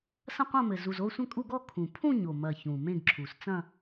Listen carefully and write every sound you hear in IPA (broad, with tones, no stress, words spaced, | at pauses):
sɐ̃˥˧qʷɐ̃˥˧mɘ˨˩ zu˨˩z o˥˧sʷɐ̃˥˧kʼu˥˧ɡɔ˥˧ kʰũ˨˩ pʰũ˥˧ɲo˨˩mɐ˨˩ çũ˨˩mẽ˥˧ɡǁʰu˨˩s t͡sɐ̃˥˧